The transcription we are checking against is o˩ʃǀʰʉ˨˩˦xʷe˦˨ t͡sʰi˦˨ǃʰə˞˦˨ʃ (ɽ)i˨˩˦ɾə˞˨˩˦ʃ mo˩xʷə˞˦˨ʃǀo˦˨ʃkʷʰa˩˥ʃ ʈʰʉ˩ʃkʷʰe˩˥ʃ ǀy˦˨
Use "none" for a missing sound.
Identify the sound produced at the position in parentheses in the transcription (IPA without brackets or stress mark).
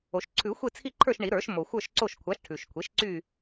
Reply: ɳ